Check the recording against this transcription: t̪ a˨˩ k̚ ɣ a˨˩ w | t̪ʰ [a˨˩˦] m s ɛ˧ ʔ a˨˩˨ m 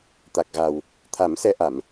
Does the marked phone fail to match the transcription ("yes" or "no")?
no